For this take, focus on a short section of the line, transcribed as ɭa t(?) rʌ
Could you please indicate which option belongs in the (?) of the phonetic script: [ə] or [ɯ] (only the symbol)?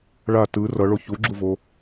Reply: ɯ